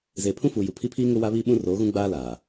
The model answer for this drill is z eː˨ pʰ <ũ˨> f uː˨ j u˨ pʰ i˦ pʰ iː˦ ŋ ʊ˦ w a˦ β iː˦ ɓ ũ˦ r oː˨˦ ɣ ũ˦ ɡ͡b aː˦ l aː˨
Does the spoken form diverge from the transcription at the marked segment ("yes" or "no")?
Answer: yes